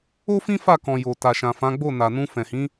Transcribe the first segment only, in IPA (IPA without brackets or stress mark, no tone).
o